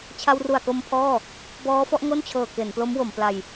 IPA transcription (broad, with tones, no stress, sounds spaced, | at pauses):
t͡ɕʰ a˧ w r u˨˩ a̯ k o˧ m pʰ ɔː˥˩ | b ɔː˦˥ f ɔ˦˥ ʔ ŋ o˥˩ n t͡ɕʰ ɤː˨˩ k e˩˦ n p l o˦˥ m w o˩˦ m p l a˧ j